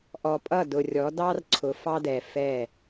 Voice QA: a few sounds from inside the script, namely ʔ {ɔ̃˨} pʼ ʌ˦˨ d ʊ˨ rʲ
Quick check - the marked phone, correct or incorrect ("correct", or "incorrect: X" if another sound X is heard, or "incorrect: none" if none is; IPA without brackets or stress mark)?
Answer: incorrect: ɔ˨